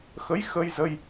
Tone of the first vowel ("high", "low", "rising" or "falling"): rising